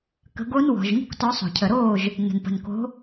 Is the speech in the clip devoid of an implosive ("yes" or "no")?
yes